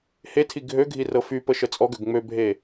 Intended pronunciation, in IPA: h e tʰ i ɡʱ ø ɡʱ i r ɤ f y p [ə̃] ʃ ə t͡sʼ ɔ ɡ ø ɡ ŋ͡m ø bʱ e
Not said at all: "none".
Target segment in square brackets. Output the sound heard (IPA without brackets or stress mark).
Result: ə